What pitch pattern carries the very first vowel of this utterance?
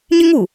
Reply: high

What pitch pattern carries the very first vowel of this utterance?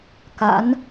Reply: rising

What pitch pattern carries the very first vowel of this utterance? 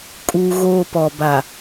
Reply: low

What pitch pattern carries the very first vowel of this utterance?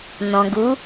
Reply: low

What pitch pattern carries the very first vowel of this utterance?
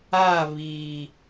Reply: falling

